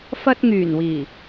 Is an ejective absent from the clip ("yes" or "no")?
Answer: yes